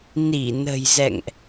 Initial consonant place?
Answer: alveolar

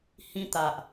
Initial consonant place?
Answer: glottal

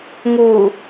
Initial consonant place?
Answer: velar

